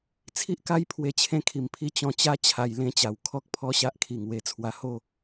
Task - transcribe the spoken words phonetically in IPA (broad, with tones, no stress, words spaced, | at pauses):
t͡sʰi˦ʔka˦j pʰwe˧t͡ɕʰẽ˦kʰi˨˩mpʰi˦ t͡ɕɔ̃˧t͡ɕa˦ t͡ɕʰa˧jlẽ˦t͡ɕa˨˩w kʰɔ˦k̚pʰɔ˥˧ ɕa˦ʔkʰi˨˩ŋwe˧ t͡sʰwa˧ho˥˧